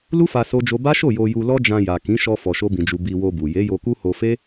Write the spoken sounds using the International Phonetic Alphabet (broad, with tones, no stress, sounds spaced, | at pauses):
l u˦ f a˧ s o˦ d͡ʒ o˦ b a˦ ʃ o˦˨ j o˧ j u˧ l ɔ˦ d͡ʒ ã˧ j a˨ k ĩ˨˦ ʃ ɔ˧ f ɔ˧ ʃ o˦ b ĩ˧ d͡ʒ u˧ b i˧ w o˧ b u˨ j e˨˦ j o˧ k u˦ h o˧ f e˦